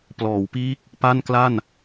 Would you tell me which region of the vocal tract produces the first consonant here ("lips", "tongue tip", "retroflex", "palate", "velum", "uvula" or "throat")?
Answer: lips